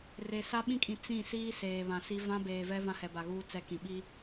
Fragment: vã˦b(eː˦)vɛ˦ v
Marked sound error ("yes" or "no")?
yes